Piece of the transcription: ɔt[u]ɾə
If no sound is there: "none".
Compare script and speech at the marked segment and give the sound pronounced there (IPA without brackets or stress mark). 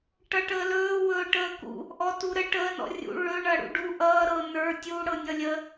u